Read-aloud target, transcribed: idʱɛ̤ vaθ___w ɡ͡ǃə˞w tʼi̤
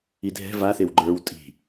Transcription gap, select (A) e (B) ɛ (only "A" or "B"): A